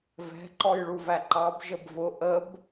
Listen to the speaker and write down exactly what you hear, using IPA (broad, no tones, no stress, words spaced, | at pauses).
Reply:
vɛ̤ ǃɔjɭuvæǃɑb ʒəbvʊ ʔəb